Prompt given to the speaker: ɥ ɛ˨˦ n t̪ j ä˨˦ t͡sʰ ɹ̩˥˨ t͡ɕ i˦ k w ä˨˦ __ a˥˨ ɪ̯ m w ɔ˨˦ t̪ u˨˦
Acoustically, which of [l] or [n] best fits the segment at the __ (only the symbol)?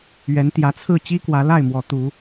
l